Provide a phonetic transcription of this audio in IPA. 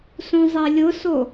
s ũ zˤ e lʲ ʊ s o

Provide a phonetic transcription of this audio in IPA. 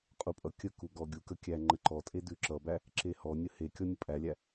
qʼ u pʼ ʌ kʲ ə k u ɡ ɔ ɡʲ u k ə kʲ æ ŋ͡ǃ ə ǃ ɔ tʼ e d ʉ ǁ ʌ b æ | ǁ e h ɔ nʲ ə h e kʲ ɔ nʲ ə pʼ æ lʲ æ

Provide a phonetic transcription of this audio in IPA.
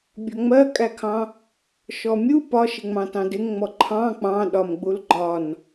bʲ ɔ ŋ͡m ɜ kʼ æ kʰ ɑ̃ | ʃ ɔ mʲ u p ɒ ʃ ɪ ŋ͡m ɑ̃ t ɑ̃ d ɪ ŋ ŋ͡m ɔ ǃʰ ɑ̃ k͡p ɑ̃ ɗ ɒ m ɡ͡b u l ɡ͡ǃ ɒ n

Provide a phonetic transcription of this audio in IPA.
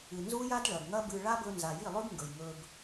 ɨ˨ n z u˦ j a˦ d ɭ ɐ˨ ɡ ŋ ɐ˦ b ɨ˧ ɭ a˦ b ɵ˧ n z a˨ j i˦˨ lˠ ʉ˦ ɡ ŋ ɡ ɵ˨ j ŋ ɵ˧ b

